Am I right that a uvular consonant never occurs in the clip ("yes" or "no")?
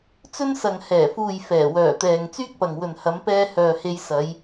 yes